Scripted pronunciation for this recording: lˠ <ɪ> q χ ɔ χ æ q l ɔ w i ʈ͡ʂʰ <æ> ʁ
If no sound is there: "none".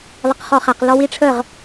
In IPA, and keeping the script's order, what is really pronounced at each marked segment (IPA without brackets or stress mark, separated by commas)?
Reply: ə, ə